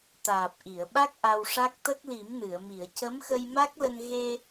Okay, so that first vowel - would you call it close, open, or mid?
open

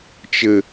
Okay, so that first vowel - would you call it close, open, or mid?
mid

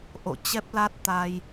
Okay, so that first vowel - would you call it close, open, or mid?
mid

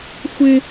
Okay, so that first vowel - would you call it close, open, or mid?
close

